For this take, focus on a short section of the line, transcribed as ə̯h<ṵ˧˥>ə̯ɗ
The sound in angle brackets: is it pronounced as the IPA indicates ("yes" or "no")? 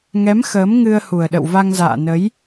no